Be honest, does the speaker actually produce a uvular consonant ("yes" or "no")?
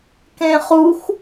yes